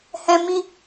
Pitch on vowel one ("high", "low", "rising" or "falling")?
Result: high